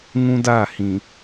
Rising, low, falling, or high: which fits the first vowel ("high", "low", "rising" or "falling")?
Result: high